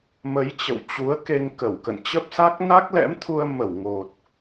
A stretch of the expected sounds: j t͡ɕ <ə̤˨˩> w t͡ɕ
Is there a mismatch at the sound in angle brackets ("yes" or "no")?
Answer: yes